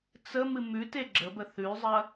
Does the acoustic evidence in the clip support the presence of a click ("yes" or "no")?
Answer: yes